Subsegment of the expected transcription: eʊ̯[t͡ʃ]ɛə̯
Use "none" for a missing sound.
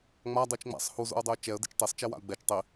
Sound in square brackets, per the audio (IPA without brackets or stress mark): t͡ʃ